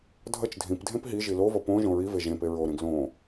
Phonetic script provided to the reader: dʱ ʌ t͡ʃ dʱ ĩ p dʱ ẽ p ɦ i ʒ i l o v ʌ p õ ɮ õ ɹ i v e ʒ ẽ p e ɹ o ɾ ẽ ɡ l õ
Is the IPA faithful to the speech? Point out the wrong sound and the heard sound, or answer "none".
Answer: ɮ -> ʒ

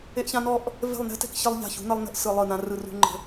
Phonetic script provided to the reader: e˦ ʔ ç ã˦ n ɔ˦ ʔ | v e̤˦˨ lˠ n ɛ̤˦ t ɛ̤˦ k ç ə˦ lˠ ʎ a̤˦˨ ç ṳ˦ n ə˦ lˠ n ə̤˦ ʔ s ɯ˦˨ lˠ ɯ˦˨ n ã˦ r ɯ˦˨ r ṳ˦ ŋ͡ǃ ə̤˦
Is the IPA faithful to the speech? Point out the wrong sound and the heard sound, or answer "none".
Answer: none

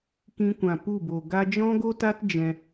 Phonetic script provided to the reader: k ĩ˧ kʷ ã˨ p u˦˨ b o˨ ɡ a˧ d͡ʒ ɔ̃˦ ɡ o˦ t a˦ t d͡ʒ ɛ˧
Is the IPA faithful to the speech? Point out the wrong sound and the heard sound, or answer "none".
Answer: ɛ˧ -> ɛ̃˧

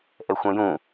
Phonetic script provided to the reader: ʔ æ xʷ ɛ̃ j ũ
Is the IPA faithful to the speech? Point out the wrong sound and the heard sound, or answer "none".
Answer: æ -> ɛ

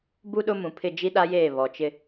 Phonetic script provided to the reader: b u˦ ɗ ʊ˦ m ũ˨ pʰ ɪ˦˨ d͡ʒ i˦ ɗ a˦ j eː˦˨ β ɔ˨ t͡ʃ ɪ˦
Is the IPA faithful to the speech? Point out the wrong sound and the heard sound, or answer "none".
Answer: none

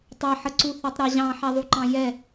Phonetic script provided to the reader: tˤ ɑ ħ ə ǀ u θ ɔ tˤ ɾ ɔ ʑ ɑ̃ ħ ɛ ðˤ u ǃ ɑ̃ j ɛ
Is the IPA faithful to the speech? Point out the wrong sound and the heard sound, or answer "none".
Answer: none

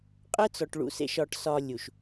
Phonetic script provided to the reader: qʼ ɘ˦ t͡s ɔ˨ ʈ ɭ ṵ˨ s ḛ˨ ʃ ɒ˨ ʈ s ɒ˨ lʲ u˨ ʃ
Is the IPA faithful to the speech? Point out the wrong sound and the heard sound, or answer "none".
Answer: none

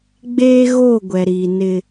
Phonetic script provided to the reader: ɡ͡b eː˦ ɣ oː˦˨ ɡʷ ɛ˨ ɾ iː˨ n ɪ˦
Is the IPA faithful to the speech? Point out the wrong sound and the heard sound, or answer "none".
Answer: none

